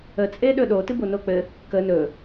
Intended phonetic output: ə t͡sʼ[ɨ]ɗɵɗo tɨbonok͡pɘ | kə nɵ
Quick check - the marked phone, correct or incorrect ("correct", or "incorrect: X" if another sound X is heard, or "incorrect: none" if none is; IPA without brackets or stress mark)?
incorrect: e